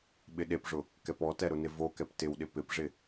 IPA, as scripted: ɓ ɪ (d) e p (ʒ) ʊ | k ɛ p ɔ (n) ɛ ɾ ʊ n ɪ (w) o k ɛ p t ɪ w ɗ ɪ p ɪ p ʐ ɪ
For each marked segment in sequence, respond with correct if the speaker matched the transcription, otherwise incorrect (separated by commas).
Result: incorrect, incorrect, incorrect, incorrect